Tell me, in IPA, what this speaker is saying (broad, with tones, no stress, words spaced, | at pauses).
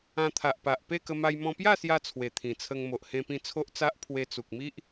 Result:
ã˧t̪ʰa˨ʔpa˨ʔ pe˥˧kə˧ma˧j mɔ̃˧pja˥˧sja˧ t͡sʰwe˨˩t̪ʰĩ˨˩t͡sʰə˧ŋ mo˨ʔhẽ˧pĩ˧ t͡sʰo˦ʔt͡sa˦ʔ pʰwe˧t͡su˨k̚mi˦ʔ